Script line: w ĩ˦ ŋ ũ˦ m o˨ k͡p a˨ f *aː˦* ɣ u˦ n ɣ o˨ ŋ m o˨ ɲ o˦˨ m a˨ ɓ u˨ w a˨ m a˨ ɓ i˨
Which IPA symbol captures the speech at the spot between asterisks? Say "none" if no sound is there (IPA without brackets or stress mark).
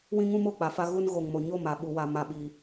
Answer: a˦